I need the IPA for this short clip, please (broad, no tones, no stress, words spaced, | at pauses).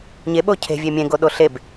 ɲeɓo cʰe̤vʲe mʲẽɡoɗo ɬeb